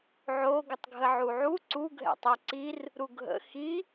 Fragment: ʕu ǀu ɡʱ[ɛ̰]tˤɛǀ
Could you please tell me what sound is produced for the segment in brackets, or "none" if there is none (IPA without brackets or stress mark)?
ɛ̰